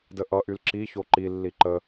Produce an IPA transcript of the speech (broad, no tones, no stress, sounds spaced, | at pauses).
d ə ʔ ʌ ʔ y l ǁ i ç o ǃ i lː i ǃ ə